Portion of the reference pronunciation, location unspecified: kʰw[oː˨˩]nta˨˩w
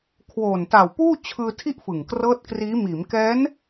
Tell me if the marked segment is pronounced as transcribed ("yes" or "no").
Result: yes